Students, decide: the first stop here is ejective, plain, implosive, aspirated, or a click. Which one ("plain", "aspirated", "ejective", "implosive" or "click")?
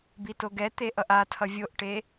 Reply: plain